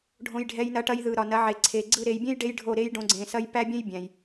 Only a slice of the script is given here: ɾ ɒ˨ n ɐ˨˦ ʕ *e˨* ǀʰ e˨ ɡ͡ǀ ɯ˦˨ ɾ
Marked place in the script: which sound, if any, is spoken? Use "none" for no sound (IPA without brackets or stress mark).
e˨